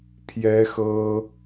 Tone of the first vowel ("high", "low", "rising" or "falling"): high